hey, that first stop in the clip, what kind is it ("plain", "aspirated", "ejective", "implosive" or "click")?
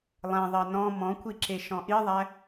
aspirated